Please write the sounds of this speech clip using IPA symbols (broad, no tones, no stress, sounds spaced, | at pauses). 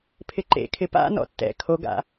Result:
pʰ ɪ ǃ ḛ kʰ ɪ p a̰ n ɔ̰ tː ɛ̰ kʰ o ɡ a̰